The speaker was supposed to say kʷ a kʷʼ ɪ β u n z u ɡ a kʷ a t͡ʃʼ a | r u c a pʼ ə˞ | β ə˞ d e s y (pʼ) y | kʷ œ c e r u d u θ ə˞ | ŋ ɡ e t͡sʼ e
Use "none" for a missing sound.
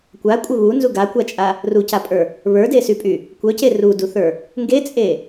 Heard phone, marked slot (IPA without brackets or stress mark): pʼ